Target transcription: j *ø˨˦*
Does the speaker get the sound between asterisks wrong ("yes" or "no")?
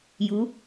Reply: yes